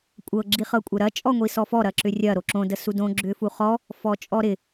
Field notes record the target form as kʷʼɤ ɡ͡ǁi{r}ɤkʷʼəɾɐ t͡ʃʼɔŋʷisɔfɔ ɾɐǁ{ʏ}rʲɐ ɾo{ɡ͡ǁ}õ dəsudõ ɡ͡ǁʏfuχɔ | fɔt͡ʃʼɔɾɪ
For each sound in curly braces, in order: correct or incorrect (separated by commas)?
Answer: incorrect, correct, incorrect